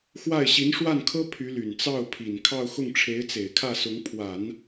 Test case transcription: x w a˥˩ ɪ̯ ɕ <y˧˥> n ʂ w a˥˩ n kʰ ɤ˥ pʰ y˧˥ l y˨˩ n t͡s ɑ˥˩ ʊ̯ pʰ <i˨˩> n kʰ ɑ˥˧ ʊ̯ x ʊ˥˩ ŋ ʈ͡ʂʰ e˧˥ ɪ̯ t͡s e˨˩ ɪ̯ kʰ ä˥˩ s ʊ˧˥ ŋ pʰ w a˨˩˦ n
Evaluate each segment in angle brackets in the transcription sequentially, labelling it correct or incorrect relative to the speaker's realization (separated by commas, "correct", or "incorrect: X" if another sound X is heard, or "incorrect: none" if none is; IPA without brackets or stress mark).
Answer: incorrect: i˧˥, correct